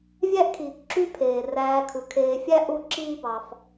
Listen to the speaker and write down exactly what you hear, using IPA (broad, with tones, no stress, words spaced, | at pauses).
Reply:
vʲæ˥ʔkʰiː˩kǁy˦ pʰeː˩ ræː˨kʰɯ˩kʰeː˨fʲæ˦ ʔu˦ ǁiː˦bɑ˨f